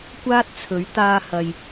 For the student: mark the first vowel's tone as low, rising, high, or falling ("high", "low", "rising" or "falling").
high